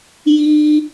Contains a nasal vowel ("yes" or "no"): no